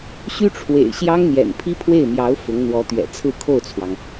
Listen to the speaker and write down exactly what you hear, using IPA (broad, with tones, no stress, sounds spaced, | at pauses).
ɕ y˥ ʈ͡ʂʰ w ḛ˨˩ ɪ̯ ɕ j ɑ˥ ŋ n̪ j ɛ̰˨˩ n pʰ i˥ pʰ w e˥˩ ɪ̯ m j ɑ˧˥ ʊ̯ f ʊ˧˥ ŋ n̪ w ɔ˧˥ t̪ ɥ ɛ̰˨˩ t͡sʰ ɹ̩˥˧ kʰ o˥˩ ʊ̯ t͡sʰ w ɑ˩ ŋ